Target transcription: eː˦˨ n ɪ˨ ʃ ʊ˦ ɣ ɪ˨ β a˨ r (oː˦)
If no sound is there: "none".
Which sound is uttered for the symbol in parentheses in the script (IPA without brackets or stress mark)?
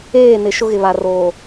oː˨